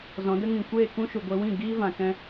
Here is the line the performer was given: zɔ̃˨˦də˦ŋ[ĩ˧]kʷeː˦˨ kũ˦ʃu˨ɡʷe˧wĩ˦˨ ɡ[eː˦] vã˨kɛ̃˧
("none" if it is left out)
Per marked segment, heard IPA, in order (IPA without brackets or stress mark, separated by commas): ĩ˨, iː˦